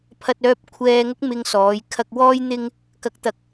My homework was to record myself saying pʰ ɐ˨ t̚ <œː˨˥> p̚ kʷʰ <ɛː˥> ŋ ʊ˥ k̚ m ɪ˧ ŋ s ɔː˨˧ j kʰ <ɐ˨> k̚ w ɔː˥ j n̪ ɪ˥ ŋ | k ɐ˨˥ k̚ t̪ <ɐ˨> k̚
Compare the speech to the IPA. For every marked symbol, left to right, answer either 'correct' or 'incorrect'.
incorrect: œː˨, incorrect: ɛː˧, incorrect: ɐ˧, correct

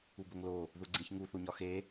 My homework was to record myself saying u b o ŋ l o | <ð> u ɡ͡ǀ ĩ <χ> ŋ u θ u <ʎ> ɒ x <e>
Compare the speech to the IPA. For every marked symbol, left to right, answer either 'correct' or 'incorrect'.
correct, incorrect: ç, incorrect: ɲ, correct

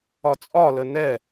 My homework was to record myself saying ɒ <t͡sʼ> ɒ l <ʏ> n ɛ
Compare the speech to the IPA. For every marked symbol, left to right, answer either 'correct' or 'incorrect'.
correct, incorrect: ə

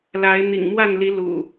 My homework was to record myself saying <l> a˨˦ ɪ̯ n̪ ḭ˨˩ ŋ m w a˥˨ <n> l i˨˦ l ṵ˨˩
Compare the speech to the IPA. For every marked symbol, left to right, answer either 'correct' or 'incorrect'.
correct, correct

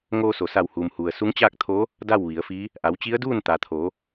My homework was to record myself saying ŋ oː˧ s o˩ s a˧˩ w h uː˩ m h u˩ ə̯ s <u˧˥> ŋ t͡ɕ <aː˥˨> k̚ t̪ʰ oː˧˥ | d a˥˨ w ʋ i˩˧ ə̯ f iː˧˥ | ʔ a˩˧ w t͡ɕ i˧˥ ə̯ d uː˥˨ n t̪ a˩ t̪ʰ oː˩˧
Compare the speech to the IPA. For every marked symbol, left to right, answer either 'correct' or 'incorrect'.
correct, correct

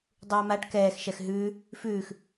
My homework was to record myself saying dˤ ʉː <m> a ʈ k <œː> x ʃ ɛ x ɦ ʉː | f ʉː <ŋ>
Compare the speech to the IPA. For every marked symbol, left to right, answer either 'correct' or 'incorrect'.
correct, incorrect: ɛː, incorrect: x

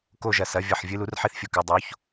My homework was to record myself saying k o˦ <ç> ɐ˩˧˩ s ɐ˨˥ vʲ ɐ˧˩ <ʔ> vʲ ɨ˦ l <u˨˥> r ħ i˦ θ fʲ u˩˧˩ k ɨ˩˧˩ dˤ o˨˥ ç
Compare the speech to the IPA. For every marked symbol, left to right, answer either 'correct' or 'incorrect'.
incorrect: ʒ, incorrect: ħ, correct

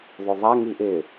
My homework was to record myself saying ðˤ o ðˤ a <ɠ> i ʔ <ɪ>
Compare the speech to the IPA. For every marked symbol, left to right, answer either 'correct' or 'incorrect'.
incorrect: ŋ, correct

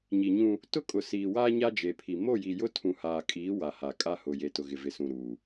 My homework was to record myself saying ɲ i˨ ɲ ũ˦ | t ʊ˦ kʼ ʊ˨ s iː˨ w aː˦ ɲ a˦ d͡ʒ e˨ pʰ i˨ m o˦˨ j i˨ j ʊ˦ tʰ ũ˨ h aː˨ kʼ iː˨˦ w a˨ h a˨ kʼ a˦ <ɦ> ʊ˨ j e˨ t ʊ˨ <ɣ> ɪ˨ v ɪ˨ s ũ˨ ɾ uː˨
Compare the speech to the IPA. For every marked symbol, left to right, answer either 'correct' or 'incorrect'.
incorrect: h, correct

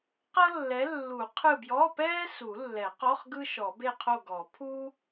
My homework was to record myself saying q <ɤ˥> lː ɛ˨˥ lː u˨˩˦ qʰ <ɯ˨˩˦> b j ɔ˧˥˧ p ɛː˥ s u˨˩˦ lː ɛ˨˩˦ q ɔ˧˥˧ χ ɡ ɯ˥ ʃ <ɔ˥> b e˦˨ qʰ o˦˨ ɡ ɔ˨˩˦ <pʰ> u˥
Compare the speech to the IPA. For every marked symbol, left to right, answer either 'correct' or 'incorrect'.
correct, incorrect: ɯ˦˨, incorrect: ɔ˨˩˦, correct

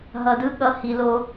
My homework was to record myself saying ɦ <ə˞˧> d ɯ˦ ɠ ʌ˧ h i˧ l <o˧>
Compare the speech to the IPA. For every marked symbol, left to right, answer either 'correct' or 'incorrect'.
incorrect: ʌ˧, incorrect: o˦

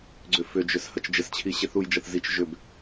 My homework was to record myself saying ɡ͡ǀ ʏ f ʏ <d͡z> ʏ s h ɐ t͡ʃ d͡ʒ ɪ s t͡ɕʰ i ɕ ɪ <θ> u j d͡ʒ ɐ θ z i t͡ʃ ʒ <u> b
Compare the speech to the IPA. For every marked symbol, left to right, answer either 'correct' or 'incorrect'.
incorrect: d͡ʒ, correct, incorrect: ʏ

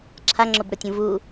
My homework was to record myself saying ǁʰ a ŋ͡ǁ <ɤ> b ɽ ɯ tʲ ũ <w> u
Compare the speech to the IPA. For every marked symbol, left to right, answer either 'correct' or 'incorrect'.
incorrect: o, incorrect: v

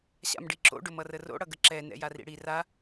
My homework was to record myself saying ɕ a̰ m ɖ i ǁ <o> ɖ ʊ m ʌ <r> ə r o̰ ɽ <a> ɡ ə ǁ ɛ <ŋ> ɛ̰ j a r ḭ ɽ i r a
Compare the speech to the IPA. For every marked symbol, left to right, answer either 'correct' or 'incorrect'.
incorrect: o̰, correct, incorrect: ʌ, incorrect: n

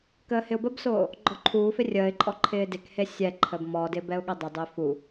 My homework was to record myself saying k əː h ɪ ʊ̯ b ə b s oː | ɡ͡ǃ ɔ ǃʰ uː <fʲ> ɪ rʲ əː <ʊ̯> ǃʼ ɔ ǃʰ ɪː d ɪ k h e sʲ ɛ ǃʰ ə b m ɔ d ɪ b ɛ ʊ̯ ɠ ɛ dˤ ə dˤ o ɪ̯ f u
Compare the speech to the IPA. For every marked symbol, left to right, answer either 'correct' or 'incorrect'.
incorrect: f, incorrect: ɪ̯

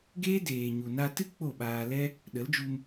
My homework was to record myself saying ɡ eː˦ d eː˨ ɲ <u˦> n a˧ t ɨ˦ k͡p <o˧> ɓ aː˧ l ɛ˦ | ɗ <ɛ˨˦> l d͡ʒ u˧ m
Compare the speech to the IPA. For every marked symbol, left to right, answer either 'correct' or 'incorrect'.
incorrect: u˨, incorrect: o˦˨, incorrect: ə˨˦

